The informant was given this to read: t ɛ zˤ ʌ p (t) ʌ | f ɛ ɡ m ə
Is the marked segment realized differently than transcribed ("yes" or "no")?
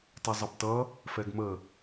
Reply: no